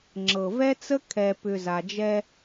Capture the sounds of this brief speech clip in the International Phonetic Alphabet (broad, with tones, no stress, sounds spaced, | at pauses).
ŋ͡ǁ ɤ˨ v ɛ˦ t͡s ə˦ kʰ ɛ˨ p ʏ˨ z a˨ d͡ʒ ɛ˦